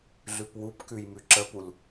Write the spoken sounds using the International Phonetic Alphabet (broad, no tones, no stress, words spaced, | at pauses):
ɮʉpwupkʉj mʉǁəpul